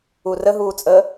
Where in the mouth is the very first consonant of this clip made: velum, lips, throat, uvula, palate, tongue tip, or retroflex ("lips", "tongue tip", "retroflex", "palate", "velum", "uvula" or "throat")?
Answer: tongue tip